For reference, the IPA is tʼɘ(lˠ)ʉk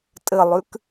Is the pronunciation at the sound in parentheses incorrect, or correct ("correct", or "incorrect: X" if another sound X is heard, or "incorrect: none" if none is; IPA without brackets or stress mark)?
correct